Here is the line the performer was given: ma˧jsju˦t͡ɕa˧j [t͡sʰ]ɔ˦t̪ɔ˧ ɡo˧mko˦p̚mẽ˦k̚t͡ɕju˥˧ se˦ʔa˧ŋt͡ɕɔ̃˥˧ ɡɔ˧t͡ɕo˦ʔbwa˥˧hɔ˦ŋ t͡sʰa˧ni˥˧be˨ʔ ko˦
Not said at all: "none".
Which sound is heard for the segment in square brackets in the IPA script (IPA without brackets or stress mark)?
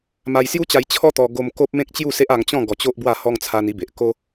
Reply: t͡ɕʰ